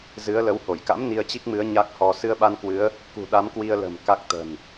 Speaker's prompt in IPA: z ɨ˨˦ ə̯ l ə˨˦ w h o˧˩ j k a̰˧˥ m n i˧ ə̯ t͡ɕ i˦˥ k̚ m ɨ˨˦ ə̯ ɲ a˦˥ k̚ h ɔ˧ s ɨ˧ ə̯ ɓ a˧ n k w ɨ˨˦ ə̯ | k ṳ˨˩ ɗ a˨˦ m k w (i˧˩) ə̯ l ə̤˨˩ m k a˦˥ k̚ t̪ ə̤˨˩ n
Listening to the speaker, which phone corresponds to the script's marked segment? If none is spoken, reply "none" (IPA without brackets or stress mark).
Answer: i˧